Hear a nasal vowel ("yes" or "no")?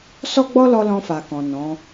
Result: yes